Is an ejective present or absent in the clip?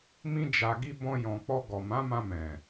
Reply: absent